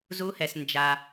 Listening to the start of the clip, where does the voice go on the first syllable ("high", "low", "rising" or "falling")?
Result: rising